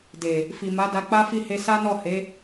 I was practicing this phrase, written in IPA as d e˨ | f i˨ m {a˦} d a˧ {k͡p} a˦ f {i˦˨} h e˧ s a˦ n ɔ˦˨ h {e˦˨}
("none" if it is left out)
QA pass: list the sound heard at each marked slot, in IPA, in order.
a˨˦, k͡p, i˦˨, e˨˦

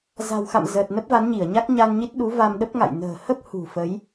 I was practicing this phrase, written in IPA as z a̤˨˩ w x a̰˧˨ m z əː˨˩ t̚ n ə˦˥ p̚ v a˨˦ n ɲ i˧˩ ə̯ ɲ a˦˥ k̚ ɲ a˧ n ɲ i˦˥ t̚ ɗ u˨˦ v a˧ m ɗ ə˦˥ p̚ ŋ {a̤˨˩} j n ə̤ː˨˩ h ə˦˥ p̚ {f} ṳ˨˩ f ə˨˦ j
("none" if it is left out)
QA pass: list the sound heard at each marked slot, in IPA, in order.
a̰˧˨, h

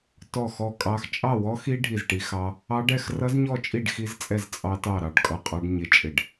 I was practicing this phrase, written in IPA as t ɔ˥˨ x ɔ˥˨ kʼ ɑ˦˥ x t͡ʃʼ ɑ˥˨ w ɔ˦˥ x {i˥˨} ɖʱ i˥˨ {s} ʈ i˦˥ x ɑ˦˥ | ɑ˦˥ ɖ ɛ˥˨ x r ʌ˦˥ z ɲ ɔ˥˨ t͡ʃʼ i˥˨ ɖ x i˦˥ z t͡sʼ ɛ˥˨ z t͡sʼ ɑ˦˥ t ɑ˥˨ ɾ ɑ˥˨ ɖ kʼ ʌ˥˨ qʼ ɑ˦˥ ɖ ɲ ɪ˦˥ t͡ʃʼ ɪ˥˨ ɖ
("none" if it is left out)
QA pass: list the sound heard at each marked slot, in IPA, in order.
i˦˥, z

